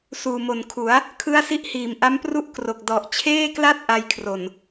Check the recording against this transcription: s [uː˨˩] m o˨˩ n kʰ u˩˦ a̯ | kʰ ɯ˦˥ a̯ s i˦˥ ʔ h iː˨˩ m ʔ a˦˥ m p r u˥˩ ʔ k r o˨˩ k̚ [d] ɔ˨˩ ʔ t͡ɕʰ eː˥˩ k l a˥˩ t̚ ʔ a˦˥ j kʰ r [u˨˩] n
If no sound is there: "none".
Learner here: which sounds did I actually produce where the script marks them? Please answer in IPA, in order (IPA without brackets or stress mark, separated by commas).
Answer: uː˨˩, d, o˨˩